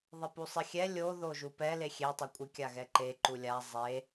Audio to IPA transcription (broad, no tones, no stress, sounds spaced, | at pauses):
ðˤ ɪ p u sˤ ɪ xʲ ɛ lʲ o ð o ʒ u p ɛ l e xʲ e tˤ o kʷʼ ɪ kʲ a ɣ ɛ ǃ e ǃ u lʲ a zˤ e